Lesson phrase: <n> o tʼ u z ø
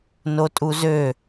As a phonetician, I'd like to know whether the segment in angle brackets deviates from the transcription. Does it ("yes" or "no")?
no